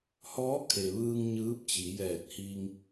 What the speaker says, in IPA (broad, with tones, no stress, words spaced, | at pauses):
hɔː˧˥kʰe˩ʋɯː˧ŋ ɲɯː˧˥p̚ t͡ɕi˩˧jɛː˧˩t̚hi˧ŋ